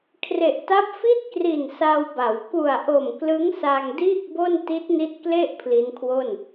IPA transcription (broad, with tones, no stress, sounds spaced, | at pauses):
kʰ r e˨˩ ʔ t a˦˥ p̚ f i˥˩ t̚ k r i˨˩ n s a˧ w b a˩˦ w k u˨˩ a̯ ʔ o˨˩ m k l ɯ˦˥ ŋ s a˧ ŋ d iː˥˩ k̚ b o˥˩ n t i˦˥ t̚ n i˦˥ t̚ k l e˥˩ ʔ pʰ l i˦˥ n kʰ w o˥˩ n